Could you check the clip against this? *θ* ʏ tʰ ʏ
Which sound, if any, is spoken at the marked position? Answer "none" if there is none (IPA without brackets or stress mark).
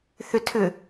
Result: θ